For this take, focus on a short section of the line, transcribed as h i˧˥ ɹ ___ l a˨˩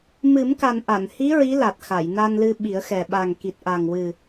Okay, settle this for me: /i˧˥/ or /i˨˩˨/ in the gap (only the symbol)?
i˧˥